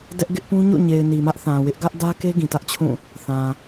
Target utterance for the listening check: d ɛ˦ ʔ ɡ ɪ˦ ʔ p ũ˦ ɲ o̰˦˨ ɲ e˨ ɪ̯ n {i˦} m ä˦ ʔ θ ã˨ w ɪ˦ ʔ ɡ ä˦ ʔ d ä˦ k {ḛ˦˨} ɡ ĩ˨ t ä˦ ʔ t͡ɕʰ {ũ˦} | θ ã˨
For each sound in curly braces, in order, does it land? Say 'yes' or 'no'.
no, no, no

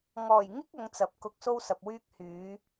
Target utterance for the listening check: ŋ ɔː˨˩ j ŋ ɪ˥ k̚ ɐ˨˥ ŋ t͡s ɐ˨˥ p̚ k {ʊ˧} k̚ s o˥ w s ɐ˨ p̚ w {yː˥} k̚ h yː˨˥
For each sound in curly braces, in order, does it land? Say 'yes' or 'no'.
yes, yes

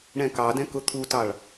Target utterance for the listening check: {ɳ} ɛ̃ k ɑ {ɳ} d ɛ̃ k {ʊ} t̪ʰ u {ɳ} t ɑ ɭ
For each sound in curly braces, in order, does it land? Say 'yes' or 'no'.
yes, no, yes, no

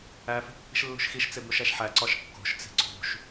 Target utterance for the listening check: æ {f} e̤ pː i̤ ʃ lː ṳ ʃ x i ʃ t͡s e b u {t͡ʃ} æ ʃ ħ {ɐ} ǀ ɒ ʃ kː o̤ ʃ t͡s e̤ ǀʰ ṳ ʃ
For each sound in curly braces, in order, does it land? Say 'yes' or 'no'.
yes, no, no

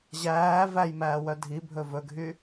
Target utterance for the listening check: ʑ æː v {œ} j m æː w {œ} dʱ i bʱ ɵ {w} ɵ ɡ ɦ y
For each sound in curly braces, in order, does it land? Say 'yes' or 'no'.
no, yes, no

